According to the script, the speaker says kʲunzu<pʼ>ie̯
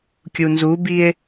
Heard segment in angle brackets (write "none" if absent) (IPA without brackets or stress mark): b